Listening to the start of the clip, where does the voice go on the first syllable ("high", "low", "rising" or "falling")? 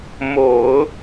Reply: low